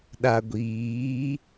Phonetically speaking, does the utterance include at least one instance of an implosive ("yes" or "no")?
yes